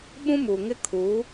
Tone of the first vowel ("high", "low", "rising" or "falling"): high